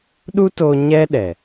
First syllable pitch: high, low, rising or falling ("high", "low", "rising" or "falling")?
high